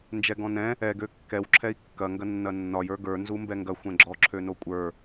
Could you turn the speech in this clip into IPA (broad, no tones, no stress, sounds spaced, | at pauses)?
n d͡ʒ ɛ ɡ ɔ̃ n ɛ̃ | ɛ ɡ ø kː ɛ w ǁʰ ɛ i̯ kː ɐ ŋ ɡ ɐ nː ɐ nː ɒ j ə˞ ɡ ə˞ n z u m b ɛ ŋ ɡ ɐ xʷ ɛ̃ ɡ͡ǁ ɔ ǁʰ ø n o kʷʼ ə˞